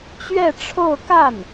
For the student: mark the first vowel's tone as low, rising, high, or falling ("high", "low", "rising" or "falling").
falling